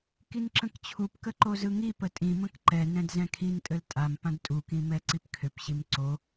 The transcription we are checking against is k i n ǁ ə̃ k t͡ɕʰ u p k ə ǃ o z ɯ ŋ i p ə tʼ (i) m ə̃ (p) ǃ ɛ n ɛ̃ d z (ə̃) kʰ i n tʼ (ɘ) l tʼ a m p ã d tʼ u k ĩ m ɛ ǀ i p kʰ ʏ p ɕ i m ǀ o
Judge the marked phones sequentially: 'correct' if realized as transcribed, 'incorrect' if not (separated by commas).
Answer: incorrect, incorrect, incorrect, correct